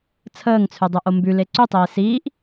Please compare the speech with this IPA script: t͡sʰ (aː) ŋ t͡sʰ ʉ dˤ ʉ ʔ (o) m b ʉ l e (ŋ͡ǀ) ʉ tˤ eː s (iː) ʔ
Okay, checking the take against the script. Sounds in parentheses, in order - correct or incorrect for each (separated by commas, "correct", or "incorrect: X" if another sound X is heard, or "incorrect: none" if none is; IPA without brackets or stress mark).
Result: incorrect: əː, correct, incorrect: ǀ, correct